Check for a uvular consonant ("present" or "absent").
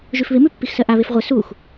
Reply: present